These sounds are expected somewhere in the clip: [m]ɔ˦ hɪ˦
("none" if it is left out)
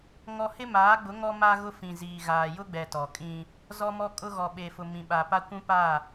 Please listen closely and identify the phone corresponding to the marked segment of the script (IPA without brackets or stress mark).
ŋ